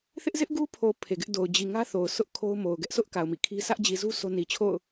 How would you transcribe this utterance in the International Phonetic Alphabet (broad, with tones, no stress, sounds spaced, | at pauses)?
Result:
θ ɪ˦ ʔ z ɪ˦ ʔ ɡ u˦ pʰ o˨ pʰ e˨ ɡ ɪ˦ ʔ d o˨ ʊ̯ d͡ʑ i˨ ŋ ä˦ θ o˨ ʊ̯ sʰ ʊ˦ ʔ kʰ o˦ ʊ̯ m o˨ ʊ̯ ɡ ɛ˦ ʔ s ʊ˦ ʔ k a˨ ʊ̯ m ḭ˦˨ kʰ i˦ s ä˦ ʔ d͡ʑ i˨ z u˦ sʰ o˦ n i˨ t͡ɕʰ o̰˦˨ ʊ̯